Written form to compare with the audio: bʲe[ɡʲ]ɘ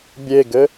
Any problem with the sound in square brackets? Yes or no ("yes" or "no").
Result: yes